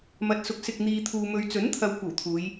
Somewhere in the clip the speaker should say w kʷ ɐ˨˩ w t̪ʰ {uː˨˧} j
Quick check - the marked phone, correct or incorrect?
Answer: correct